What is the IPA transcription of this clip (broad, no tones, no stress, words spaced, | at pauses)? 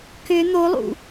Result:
kʏ n̪olˠṵ